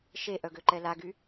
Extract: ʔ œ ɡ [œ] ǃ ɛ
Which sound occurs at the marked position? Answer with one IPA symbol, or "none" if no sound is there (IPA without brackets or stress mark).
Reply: ø